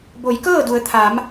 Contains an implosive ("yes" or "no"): no